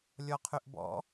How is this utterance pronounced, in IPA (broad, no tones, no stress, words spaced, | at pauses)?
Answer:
lʲɔqʰyʔbɔ̰